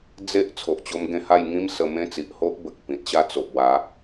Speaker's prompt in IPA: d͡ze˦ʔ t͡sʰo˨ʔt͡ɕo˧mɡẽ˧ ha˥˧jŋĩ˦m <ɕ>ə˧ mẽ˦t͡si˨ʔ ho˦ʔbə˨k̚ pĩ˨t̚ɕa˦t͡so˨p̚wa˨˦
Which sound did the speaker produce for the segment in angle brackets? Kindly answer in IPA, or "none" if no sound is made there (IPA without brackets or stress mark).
s